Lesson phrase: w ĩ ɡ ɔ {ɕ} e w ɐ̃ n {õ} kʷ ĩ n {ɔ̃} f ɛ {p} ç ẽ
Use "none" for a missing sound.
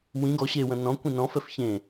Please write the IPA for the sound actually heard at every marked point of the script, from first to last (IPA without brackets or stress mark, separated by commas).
ɕ, ɔ̃, ɔ̃, f